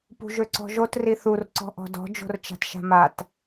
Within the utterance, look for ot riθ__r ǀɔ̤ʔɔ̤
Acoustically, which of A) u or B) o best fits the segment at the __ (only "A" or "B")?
A